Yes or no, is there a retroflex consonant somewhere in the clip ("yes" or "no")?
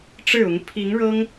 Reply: yes